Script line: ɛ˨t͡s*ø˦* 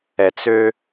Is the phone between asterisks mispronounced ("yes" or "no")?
no